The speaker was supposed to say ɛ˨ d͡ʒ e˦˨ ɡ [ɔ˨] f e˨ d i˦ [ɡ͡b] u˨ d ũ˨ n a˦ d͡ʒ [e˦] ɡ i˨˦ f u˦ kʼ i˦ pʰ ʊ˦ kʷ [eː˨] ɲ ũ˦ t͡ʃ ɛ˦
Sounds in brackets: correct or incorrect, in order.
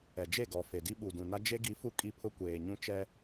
correct, incorrect, correct, correct

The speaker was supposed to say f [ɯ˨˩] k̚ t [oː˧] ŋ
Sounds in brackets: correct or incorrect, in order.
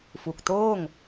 incorrect, incorrect

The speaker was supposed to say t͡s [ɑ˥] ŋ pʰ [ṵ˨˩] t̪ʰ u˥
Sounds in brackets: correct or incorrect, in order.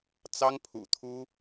correct, correct

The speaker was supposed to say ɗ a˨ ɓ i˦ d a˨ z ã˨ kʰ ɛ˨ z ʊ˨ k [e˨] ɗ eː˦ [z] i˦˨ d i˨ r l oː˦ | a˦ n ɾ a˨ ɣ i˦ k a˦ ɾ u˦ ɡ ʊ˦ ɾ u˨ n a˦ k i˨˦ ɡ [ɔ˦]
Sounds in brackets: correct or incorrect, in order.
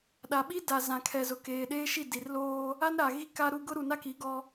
incorrect, incorrect, correct

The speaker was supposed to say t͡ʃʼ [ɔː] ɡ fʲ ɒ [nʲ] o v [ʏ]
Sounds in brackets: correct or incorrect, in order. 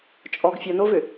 incorrect, incorrect, correct

